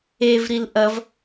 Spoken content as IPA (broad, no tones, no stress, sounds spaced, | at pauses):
e v ɾ i l ʔ ɐ v